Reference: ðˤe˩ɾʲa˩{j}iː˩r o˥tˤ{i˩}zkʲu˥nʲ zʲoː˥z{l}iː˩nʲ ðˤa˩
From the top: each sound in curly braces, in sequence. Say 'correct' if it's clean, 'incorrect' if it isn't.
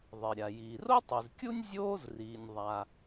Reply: correct, correct, incorrect: r

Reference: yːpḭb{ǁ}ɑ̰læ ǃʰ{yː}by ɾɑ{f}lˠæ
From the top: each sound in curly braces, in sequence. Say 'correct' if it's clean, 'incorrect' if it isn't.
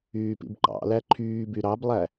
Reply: incorrect: ǃ, correct, incorrect: b

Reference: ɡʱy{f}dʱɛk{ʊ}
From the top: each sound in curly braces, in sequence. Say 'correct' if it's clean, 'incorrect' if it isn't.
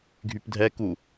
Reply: incorrect: p, incorrect: u

